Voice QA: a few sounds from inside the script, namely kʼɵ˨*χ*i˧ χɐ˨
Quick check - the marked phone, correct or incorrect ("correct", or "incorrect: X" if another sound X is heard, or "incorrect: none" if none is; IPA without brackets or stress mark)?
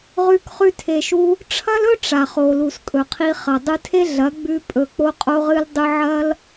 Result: incorrect: qʰ